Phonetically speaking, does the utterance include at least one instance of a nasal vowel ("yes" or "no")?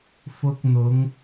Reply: no